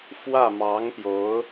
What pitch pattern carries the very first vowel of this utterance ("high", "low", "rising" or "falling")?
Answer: falling